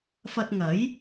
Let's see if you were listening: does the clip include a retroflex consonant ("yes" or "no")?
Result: no